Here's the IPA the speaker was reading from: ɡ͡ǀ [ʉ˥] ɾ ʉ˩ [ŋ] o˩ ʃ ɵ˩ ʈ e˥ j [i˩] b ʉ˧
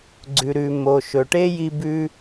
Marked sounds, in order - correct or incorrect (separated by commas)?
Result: incorrect, incorrect, incorrect